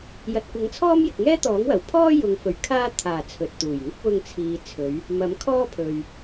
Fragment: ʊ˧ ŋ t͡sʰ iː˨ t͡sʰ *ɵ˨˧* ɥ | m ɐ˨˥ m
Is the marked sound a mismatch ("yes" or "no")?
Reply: no